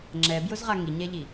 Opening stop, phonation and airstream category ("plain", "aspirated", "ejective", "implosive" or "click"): click